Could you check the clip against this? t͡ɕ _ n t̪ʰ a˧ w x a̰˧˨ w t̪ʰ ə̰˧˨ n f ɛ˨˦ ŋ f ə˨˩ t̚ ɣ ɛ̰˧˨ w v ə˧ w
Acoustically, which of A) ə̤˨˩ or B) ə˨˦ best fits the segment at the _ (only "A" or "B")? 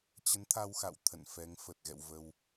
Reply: B